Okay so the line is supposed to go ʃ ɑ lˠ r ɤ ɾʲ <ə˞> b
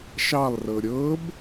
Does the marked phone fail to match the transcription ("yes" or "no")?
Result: yes